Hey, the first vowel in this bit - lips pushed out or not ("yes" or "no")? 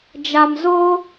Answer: no